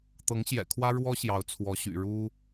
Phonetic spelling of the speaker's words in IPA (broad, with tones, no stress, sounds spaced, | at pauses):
t̪ ɤ˧˥ ŋ ɕ j ɛ̰˨˩ kʰ w ä˥ ɻ w ɔ˥ ɕ j ɑ˧˥ ʊ̯ t͡sʰ w ɔ˧˥ ɕ y̰˨˩ ɻ u˥